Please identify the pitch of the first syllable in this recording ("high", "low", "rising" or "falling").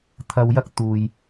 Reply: low